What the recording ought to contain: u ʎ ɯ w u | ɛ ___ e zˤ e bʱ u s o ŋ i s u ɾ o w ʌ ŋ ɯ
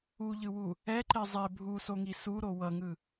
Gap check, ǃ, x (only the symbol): ǃ